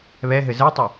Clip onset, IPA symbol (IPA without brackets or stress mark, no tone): β